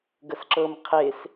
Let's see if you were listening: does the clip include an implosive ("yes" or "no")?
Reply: no